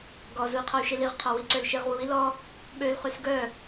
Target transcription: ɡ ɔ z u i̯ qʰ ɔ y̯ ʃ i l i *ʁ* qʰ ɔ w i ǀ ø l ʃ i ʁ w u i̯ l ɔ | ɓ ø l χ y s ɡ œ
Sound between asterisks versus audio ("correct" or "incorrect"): correct